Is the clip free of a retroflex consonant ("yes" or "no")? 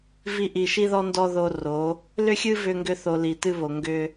yes